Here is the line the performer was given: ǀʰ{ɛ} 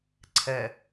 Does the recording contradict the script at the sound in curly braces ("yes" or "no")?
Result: no